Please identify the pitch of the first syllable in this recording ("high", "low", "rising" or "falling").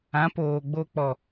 rising